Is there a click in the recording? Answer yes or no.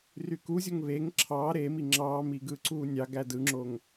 yes